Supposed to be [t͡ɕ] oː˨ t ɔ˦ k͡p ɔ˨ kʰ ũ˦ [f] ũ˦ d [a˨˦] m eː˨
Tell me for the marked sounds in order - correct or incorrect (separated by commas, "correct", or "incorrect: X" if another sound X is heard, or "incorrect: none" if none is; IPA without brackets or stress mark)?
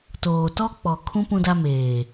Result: incorrect: t, incorrect: p, incorrect: a˦